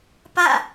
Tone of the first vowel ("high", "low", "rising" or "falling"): falling